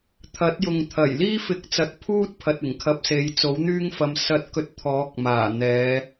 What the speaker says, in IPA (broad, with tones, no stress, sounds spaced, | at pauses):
t̪ʰ ɐ˨˥ t̚ j ʊ˨ ŋ t̪ʰ ɐ˨˩ j l iː˥ f ɪ˨˥ k̚ t͡s ɐ˨ t̚ pʰ uː˥ t̚ pʰ ɐ˨ t̚ ɪ˨˩ ŋ kʰ ɐ˧ p̚ s e˨˧ j t͡s o˨˥ w n̪ yː˥ ŋ f ɐ˧ m s ɐ˥ t̚ k ɵ˥ t̚ t̪ʰ ɔː˨˥ k̚ m aː˨˩ n̪ ɛː˨˧